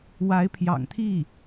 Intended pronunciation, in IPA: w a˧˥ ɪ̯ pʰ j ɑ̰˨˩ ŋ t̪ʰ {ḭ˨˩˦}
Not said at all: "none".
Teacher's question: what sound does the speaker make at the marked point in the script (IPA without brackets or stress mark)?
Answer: i˥˩